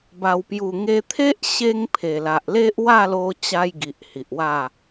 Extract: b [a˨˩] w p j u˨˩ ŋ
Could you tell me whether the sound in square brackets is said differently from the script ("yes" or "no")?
no